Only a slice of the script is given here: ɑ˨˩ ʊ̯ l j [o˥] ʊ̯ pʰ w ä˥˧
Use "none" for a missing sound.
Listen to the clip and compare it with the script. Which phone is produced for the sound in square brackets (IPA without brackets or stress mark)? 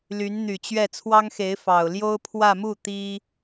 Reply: o˥